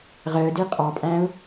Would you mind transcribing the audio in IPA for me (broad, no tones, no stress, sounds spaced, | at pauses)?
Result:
ʁ əː d i qʼ ɑ pʼ æ̃ ʊ̯